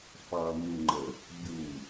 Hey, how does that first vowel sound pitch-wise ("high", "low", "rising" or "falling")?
low